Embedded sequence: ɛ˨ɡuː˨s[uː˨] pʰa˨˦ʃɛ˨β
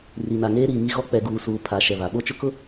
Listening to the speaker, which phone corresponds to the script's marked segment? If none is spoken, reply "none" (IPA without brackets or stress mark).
uː˨